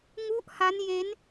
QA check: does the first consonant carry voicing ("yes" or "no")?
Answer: yes